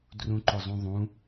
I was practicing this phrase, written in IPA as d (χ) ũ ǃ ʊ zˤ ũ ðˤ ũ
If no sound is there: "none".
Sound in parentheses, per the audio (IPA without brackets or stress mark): r